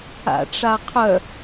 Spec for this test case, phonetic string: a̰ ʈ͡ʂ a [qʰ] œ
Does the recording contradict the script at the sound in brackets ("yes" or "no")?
no